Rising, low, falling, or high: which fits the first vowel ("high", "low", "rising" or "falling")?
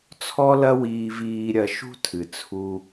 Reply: high